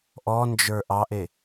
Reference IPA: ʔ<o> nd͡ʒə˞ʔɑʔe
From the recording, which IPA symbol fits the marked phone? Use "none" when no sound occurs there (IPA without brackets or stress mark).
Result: ɔ